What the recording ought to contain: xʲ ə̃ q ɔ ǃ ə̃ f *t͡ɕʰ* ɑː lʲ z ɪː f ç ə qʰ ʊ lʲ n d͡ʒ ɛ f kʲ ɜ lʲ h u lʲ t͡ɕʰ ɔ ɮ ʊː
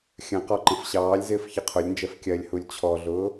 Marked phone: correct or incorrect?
incorrect